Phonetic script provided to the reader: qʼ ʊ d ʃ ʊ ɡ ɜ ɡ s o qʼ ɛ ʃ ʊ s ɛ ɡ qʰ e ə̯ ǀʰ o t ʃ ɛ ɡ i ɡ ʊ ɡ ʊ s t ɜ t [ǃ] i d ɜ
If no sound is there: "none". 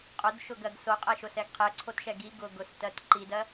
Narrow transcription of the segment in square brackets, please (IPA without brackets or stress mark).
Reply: ǃ